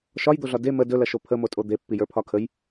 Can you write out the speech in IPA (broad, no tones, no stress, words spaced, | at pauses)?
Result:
ʃɒjd̪oɮɒ de mə dɵlɐʃo pʰəmotʼo d̪epːijə˞pʰɒ kʰəj